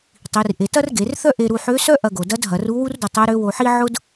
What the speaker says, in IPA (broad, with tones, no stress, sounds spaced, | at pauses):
tˤ i˩˧ r ʔ e˩˧ t ɐ˥ r ɡ e˩˧ r θ œ˥ ʔ e˧ ɾ u˧ ħ ø˧˥ s œ˥ ʔ ɐ˧ ɡ o˩ d ɐ˧˥ d ɦ ɐ˩˧ r u˧˥ w u˥ r d ʊ˧ tˤ ɛ˧˥ ɾ ø˧˥ w o˧ ħ i˥ ʕ ʊ˥ d